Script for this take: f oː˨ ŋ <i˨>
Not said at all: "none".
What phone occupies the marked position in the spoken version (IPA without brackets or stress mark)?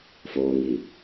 i˨